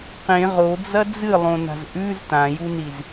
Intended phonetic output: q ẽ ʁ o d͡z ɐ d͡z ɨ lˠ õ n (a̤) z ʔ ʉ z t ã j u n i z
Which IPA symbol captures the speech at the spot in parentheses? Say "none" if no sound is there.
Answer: a̤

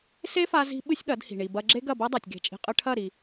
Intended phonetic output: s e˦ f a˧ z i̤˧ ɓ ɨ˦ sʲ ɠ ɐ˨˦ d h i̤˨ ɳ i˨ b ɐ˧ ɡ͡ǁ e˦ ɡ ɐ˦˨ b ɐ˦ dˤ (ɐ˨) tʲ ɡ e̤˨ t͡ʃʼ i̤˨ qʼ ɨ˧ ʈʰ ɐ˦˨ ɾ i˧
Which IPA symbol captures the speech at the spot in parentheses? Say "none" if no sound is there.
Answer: a˨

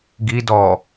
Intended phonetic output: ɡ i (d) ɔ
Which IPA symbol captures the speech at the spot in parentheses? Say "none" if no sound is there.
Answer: d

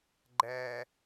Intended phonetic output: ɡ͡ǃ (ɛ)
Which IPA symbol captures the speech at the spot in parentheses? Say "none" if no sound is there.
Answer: ɛ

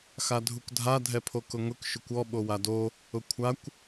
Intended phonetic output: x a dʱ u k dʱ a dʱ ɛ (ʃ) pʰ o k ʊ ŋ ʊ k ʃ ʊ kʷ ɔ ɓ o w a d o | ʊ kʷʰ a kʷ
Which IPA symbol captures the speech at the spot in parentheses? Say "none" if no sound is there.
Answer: none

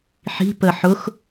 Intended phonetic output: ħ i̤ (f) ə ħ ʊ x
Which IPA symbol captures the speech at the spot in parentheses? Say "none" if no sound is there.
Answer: p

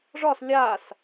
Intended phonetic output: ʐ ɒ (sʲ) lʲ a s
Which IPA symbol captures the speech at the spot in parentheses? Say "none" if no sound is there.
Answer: s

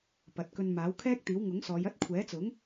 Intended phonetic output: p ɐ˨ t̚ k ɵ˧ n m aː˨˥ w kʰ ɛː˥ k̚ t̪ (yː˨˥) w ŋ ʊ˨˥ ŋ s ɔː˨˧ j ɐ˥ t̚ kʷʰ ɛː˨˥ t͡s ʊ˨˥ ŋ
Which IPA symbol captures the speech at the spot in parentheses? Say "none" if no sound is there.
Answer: iː˨˥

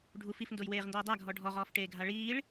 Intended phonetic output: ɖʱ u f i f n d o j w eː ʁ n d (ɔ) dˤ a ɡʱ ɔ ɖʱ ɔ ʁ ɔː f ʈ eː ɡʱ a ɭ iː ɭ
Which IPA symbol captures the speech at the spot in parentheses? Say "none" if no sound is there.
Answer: ɔː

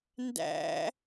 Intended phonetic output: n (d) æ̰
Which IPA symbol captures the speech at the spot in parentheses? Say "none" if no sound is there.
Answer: d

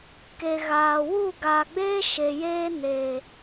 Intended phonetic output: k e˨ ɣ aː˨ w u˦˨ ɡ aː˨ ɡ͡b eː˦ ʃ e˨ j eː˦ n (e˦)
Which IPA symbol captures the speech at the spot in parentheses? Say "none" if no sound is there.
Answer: e˨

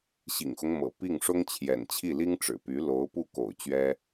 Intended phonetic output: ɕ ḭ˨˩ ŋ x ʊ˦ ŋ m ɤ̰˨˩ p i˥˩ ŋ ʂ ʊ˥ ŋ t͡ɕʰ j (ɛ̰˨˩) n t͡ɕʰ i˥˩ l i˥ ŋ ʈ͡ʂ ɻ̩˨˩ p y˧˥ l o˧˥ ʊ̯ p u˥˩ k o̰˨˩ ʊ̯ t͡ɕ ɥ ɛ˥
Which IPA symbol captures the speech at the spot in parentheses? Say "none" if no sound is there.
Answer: ɛ̰˨˩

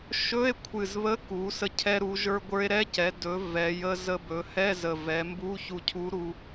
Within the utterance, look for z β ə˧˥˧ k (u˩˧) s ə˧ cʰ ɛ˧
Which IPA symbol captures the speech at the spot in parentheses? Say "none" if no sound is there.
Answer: u˩˧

